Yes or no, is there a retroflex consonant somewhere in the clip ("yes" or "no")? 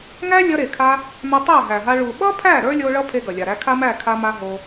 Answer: yes